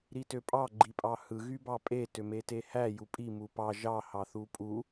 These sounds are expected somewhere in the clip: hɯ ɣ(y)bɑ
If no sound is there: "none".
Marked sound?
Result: y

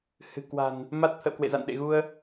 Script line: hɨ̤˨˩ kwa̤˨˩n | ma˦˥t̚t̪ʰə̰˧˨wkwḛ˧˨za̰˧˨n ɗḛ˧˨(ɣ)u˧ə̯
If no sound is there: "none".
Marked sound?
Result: ɣ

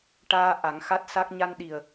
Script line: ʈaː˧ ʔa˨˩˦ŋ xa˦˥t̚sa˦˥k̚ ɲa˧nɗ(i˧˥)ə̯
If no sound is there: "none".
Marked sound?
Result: i˨˩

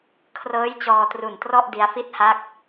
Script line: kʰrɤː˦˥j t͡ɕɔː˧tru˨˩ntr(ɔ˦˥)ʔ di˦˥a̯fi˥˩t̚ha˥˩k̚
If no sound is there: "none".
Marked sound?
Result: ɔ˥˩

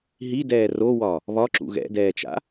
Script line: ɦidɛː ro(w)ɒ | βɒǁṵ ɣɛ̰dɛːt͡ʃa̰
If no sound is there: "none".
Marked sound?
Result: w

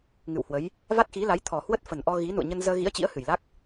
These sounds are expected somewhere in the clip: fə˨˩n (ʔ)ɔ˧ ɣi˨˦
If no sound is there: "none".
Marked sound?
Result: ʔ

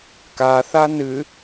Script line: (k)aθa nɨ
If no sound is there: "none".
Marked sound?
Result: k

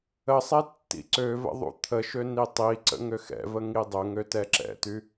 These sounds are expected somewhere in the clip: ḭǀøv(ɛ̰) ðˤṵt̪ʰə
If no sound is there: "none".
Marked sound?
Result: ə̰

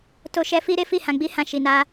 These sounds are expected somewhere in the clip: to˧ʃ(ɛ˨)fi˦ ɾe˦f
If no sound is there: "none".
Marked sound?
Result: ɛ˧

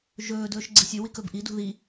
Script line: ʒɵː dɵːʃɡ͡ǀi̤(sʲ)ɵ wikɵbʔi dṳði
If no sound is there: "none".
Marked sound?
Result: sʲ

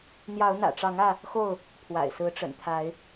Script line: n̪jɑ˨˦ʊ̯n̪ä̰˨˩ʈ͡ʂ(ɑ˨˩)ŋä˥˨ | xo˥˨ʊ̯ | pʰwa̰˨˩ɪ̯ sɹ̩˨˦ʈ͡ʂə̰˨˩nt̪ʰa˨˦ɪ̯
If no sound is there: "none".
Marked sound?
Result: ɑ˨˦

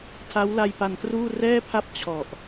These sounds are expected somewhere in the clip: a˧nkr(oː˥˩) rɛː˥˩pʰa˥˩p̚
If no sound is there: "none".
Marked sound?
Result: uː˥˩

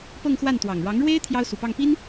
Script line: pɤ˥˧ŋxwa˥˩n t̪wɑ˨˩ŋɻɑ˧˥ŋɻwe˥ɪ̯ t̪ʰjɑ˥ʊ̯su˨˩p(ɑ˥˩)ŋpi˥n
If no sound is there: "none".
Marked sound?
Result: ɑ˥˩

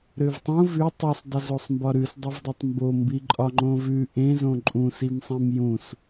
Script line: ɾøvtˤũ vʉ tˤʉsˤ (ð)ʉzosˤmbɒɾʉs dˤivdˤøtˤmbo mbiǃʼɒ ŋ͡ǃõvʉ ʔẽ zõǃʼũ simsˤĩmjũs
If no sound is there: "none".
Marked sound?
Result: dˤ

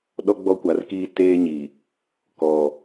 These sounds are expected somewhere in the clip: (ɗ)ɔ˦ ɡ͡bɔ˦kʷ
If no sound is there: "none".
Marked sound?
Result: ɗ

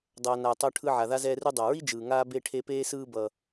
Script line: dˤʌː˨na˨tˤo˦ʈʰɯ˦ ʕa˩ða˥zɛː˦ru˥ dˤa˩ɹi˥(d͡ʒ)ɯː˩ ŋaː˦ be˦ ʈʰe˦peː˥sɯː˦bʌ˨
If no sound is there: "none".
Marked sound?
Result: d͡ʒ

